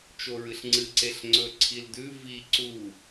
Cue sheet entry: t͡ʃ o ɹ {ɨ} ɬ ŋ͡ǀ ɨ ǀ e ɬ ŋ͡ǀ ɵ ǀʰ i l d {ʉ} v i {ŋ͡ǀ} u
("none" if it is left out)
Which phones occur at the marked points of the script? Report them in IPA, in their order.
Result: ɨ, ʉ, ǀ

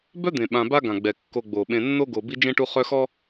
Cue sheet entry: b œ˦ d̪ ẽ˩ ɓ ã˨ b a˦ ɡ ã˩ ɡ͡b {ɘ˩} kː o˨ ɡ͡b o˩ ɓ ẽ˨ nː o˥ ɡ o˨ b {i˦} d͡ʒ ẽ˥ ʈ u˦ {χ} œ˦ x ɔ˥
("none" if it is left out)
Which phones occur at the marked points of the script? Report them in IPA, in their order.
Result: ɛ˩, i˦, χ

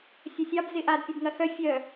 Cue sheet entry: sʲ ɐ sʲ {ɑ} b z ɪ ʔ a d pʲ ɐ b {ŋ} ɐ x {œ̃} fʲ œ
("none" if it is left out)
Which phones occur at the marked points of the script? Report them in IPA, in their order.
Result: ɑ, ŋ, œ

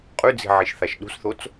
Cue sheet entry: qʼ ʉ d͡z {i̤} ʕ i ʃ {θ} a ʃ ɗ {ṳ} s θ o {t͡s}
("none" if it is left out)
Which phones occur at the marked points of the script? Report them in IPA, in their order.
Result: i̤, θ, ṳ, t͡s

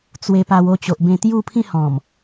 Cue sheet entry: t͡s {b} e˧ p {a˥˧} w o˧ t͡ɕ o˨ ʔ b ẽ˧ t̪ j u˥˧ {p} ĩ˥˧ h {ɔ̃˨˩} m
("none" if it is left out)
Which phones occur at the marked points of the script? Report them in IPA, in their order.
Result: w, a˧, pʰ, ɔ̃˨˩

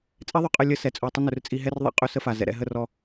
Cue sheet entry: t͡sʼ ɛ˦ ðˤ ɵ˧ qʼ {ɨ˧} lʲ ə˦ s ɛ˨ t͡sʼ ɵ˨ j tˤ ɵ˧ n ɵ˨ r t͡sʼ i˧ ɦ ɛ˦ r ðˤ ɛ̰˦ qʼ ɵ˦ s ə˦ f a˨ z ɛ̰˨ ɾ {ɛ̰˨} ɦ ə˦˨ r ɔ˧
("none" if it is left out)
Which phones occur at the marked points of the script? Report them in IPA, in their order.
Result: ə˧, ɛ̰˧

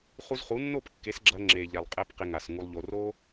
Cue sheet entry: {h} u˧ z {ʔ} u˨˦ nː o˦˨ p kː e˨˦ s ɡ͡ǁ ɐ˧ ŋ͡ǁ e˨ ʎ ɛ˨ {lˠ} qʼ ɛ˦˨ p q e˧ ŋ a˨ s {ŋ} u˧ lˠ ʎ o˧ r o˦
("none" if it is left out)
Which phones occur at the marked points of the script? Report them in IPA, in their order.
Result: χ, χ, lˠ, ŋ

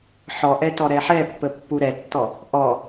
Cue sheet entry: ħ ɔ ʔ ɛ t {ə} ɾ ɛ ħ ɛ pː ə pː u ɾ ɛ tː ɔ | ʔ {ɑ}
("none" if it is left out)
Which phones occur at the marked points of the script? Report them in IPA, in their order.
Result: ɔ, ɔ

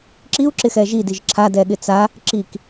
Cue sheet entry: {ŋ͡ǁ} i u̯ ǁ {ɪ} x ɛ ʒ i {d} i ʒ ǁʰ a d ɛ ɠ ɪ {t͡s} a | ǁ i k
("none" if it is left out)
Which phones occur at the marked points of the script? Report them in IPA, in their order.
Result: ǁ, ɪ, d, t͡s

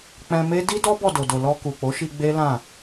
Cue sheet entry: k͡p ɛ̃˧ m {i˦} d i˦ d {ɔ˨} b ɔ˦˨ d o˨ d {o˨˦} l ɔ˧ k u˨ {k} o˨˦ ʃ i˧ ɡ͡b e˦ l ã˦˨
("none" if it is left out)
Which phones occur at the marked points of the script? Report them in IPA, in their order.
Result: e˦, ɔ˦, o˨, k͡p

